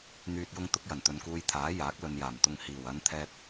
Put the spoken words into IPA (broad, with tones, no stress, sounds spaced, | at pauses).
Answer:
n̪ yː˨ t̚ j ʊ˧ ŋ t̪ ʊ˧ k̚ j ɐ˨˩ n t̪ ɵ˨ n k uː˧ j t̪ʰ aː˨˥ j aː˨˥ k̚ l ɵ˨ n j aː˨˩ m t̪ ʊ˨ ŋ h iː˨˩ w ɐ˨˧ n t̪ʰ ɛː˧ t̚